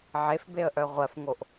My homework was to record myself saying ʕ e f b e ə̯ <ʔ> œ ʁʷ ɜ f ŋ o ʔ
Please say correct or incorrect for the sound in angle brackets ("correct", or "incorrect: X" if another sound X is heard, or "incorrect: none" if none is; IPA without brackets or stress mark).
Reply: correct